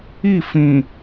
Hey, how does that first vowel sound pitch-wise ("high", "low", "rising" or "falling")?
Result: falling